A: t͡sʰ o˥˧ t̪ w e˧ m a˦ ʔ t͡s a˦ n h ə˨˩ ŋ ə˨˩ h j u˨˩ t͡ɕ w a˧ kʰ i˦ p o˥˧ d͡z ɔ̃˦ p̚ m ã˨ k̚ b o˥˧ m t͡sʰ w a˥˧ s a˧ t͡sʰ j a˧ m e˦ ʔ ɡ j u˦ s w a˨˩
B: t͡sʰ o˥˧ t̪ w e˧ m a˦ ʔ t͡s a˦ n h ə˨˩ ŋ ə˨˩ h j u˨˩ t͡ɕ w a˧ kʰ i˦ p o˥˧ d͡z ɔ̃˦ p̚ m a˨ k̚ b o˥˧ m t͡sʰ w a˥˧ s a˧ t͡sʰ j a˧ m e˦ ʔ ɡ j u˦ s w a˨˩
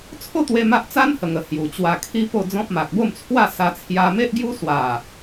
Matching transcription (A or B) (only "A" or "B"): B